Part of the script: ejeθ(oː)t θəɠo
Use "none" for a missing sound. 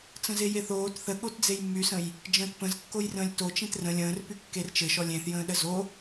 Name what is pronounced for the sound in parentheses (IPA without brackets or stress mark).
oː